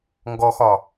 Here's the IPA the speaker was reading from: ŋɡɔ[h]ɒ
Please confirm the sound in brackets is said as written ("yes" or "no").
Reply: no